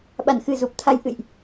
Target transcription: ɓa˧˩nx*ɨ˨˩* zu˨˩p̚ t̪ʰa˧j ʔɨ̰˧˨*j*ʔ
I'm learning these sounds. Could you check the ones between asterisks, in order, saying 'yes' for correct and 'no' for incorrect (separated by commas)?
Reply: yes, yes